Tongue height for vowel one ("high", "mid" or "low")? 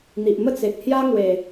high